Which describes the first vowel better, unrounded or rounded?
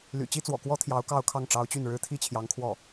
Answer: rounded